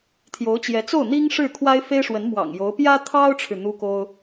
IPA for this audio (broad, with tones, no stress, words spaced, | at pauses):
t̪ʰjo˧˥ʊ̯t͡ɕjɛ˧˥t͡so˥˩ʊ̯ n̪i˥ŋ ʂɻ̩˥˩kʰwa˥ɪ̯fe˥ɪ̯ʂwə˧˥n mwɑ̰˨˩ŋ jo˧˥ʊ̯ pjä˥t̪ʰɑ˥ʊ̯ʈ͡ʂʰɻ̩˨ n̪u˥ko˥ʊ̯